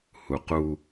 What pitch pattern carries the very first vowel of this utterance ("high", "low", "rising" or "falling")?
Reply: low